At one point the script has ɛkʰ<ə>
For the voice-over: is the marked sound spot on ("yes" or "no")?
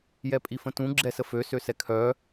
no